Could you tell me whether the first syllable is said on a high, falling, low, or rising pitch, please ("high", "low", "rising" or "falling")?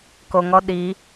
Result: low